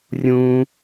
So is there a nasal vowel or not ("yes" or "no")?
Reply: yes